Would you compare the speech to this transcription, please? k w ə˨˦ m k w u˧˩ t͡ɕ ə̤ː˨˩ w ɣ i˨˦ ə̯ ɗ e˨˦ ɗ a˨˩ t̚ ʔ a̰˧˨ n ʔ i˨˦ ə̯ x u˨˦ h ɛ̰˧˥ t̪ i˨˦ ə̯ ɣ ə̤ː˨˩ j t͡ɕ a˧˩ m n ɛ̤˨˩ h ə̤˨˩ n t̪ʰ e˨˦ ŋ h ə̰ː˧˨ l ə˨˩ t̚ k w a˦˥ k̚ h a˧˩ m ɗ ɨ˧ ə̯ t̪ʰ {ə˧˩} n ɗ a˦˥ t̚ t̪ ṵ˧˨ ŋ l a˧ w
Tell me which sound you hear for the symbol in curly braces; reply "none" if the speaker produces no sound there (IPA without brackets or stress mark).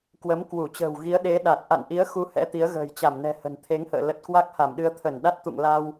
ə˧˩